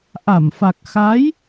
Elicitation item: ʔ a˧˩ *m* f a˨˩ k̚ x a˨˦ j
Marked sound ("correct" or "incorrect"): correct